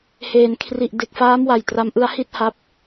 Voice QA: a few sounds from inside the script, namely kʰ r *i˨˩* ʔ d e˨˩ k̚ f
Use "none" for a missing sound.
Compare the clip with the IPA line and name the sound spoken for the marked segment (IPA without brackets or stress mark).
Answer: i˨˩